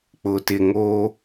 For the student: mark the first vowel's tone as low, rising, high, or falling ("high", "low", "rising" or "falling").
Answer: low